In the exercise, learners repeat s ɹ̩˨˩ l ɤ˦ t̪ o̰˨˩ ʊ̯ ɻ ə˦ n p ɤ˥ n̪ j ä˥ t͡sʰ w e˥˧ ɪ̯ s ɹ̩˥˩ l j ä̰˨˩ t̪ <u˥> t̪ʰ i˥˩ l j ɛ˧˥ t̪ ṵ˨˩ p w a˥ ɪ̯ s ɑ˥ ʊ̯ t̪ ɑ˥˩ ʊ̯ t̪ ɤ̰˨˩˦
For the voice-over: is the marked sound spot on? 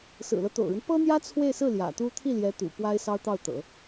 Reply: yes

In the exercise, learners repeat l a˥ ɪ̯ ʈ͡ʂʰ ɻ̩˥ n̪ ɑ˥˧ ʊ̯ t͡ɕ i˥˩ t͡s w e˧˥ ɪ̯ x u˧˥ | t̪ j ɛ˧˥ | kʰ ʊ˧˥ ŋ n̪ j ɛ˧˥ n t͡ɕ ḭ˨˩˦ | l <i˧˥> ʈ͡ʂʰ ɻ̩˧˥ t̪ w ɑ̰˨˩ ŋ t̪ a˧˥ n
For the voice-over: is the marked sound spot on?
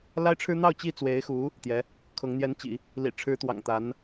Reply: no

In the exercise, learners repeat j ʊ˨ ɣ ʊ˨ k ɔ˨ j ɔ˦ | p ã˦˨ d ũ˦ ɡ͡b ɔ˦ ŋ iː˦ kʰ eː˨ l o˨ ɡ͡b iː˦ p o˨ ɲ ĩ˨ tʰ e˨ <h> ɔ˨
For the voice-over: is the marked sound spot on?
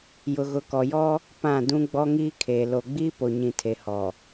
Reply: yes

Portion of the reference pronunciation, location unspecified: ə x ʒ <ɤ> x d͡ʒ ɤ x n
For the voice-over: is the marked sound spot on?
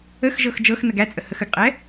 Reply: yes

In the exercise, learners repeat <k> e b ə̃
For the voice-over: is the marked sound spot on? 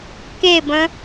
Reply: yes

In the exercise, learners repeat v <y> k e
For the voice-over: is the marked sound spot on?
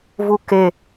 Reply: no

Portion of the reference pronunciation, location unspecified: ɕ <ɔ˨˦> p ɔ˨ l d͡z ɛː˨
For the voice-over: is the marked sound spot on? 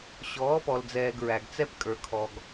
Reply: no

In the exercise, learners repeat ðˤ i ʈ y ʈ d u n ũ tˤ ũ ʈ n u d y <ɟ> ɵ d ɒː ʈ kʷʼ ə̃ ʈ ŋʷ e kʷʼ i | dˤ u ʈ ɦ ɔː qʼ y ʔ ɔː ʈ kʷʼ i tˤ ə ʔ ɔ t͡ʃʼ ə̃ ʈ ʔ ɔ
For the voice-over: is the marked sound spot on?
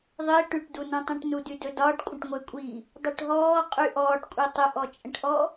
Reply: no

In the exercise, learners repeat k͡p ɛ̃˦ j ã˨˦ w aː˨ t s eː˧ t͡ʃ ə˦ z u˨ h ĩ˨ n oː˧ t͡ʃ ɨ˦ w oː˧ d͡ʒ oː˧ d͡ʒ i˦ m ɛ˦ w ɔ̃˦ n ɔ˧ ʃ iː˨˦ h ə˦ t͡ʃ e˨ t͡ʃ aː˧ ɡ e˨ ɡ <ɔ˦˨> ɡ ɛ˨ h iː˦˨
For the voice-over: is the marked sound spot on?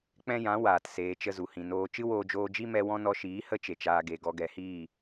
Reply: no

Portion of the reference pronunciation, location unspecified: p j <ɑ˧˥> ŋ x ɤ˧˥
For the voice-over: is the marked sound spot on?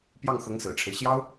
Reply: no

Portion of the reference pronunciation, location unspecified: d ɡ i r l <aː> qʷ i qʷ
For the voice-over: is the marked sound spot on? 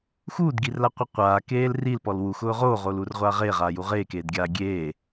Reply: no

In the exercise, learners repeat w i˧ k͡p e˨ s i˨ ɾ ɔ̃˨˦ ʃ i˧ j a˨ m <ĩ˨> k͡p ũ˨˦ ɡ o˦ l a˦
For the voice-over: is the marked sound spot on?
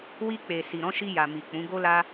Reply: no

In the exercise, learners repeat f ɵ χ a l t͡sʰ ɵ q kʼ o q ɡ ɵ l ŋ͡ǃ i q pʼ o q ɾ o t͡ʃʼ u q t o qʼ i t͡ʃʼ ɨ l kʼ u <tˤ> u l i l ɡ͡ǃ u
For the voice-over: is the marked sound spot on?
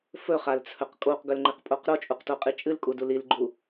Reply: no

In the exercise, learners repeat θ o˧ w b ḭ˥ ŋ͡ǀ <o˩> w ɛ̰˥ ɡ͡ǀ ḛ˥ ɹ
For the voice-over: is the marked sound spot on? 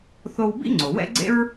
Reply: yes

